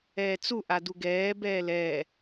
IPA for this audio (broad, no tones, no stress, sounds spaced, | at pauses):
ɛː t͡s u ʔ a d u ɡ ɛː b ɛː l ɛː